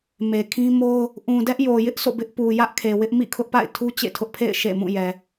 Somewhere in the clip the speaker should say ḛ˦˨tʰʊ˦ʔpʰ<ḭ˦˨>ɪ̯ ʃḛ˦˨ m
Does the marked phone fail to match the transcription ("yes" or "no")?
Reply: yes